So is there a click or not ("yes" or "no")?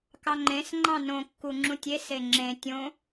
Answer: yes